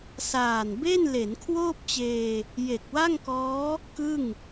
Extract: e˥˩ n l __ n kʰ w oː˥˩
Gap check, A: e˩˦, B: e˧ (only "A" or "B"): A